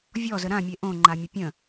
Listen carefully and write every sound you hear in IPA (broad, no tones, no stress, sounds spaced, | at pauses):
vʲ ɔ z ə ɾ ã mʲ e ʔ õ ŋ͡ǃ a mʲ ə pʲ ə̃